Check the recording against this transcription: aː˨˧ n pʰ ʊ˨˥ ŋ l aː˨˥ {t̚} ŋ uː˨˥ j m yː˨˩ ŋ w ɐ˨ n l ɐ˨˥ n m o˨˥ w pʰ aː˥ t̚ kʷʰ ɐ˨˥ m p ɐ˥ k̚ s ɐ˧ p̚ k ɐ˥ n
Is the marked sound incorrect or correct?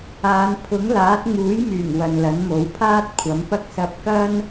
correct